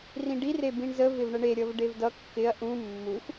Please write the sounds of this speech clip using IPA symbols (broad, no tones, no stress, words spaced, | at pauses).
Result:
rĩɖi rebĩɳzə vɪvɳəɳe ɾʲʌvɖevdʌ kːɪɐ̯ ʔũ mːux